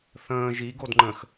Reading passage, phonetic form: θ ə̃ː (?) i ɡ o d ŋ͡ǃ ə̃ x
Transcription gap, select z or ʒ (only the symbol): ʒ